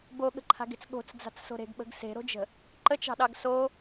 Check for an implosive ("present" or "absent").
present